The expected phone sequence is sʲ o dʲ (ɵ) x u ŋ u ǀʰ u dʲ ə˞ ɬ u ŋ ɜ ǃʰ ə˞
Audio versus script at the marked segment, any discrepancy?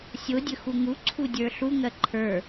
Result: no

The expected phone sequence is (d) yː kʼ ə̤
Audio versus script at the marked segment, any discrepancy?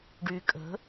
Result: yes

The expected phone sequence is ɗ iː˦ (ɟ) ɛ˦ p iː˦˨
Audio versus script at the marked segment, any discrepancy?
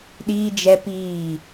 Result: yes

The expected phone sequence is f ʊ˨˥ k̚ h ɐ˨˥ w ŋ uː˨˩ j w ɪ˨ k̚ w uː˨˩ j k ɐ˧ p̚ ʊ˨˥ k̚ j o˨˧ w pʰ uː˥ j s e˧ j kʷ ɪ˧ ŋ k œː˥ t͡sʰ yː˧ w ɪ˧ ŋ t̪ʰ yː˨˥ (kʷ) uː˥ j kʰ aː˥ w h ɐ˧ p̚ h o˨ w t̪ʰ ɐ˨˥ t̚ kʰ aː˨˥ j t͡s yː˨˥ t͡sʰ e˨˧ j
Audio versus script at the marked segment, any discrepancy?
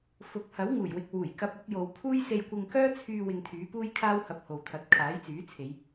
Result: yes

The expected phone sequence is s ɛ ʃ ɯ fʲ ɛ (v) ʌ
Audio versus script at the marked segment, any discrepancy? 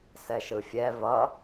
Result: no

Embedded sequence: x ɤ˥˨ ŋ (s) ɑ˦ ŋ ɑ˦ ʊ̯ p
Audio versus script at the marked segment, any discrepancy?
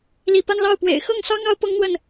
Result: no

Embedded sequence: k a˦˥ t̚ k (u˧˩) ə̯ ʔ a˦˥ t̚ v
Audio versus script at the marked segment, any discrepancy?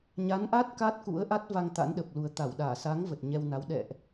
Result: yes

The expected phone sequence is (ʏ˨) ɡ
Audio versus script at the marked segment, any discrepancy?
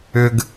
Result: no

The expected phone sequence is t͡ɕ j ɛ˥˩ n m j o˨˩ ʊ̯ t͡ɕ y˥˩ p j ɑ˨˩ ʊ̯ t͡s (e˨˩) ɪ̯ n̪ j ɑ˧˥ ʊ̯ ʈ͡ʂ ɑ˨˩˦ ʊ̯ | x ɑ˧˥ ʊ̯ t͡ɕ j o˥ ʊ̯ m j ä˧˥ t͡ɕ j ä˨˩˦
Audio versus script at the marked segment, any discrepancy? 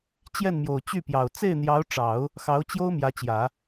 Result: yes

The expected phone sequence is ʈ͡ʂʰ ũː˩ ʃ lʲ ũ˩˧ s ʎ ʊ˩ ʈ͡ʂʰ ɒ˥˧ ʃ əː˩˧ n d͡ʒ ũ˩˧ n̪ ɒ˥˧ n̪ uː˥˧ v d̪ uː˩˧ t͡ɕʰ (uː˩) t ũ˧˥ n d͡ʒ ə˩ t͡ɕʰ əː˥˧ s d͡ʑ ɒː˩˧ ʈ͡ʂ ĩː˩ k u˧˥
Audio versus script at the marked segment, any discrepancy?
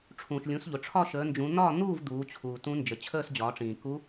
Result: no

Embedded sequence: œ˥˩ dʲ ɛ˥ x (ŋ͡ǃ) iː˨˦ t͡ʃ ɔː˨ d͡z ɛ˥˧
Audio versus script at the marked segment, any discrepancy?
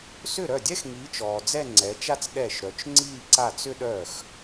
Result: yes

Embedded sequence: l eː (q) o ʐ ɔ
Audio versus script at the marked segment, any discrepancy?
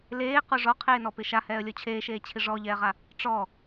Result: no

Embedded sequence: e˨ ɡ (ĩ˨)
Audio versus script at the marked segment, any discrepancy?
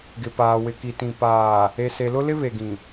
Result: no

